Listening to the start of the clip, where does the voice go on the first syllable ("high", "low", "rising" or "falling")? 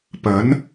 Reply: rising